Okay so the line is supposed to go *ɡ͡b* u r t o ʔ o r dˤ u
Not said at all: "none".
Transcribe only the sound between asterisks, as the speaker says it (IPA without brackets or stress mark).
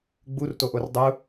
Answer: ɡ͡b